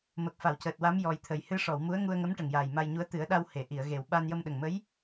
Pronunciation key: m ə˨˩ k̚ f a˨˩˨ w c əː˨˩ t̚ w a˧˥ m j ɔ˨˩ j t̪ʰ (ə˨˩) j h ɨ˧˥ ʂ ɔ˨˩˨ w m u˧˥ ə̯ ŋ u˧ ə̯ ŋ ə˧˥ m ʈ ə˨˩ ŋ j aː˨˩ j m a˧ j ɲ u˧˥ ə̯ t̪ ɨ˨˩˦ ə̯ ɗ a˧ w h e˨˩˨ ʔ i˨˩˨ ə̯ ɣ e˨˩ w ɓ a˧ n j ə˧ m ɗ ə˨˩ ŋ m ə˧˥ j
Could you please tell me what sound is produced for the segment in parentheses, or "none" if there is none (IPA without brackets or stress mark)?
ə˨˩